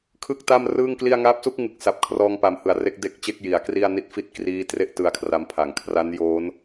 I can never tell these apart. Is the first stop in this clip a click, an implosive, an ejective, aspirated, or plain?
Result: aspirated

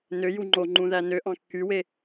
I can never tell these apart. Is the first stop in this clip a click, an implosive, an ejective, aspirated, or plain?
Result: click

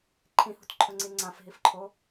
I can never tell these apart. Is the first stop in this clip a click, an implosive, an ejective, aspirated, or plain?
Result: click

